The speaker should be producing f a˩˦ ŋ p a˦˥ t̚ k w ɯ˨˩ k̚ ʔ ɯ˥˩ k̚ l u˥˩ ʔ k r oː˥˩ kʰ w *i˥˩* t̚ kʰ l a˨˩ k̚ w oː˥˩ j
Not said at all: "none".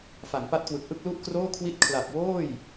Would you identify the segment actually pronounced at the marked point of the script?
i˥˩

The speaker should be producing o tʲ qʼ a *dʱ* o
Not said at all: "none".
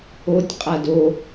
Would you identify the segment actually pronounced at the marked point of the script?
d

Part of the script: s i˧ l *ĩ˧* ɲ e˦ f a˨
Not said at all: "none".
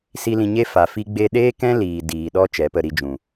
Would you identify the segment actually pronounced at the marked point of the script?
ĩ˧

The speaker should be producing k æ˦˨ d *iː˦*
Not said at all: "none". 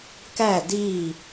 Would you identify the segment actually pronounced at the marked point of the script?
iː˦˨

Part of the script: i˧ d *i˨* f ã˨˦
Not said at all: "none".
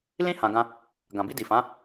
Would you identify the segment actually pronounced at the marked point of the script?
i˨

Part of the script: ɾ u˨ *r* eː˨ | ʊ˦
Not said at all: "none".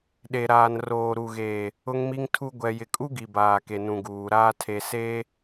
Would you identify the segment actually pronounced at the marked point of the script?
ɣ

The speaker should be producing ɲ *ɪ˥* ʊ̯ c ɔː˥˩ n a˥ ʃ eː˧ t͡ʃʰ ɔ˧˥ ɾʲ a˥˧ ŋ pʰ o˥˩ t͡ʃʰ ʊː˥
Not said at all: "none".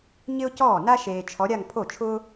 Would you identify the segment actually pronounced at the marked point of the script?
ɪ˥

